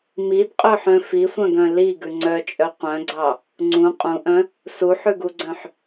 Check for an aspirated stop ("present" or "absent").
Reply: absent